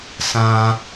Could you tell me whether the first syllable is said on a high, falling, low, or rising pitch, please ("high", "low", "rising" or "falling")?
low